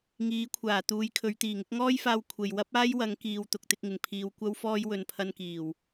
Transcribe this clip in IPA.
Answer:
ŋiː˨˥kʷʰaː˨˩ t̪uː˨˧jkʰɵ˨˧ɥ t̪iː˨˩ŋɪ˨˥k̚ŋɔː˥jfaː˧w kʷʰe˨j wɐ˥p̚aː˥j wɐ˨˧ŋkiː˨w t̪ʊ˨k̚t̪ɪ˧k̚ŋɪ˨˩ŋ pʰiː˨˧w kʷɐ˥wfɔː˥j wɵ˨npʰɐ˧nkiː˨˩w

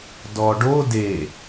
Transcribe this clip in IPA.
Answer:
dɔɖo de

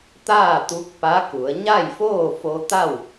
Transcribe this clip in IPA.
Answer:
t̪aː˥˨t̪u˧˥k̚ pa˧˥ku˩˧ə̯ ɲa˥˨jfoː˥˨fo˧t̪a˥˨w

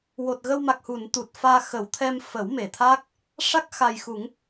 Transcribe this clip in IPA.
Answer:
wo˨˩t̚ɣə˧wma˨˩k̚hu˨˩˨n t̪u˨˩t̚faː˧ xə˨˩˦wt̪ʰɛ˧m fə˨˩˦wme˨˩˨t̪ʰaː˦˥k̚ | ʂa˦˥k̚xa˨˩jxu˨˩˦ŋ

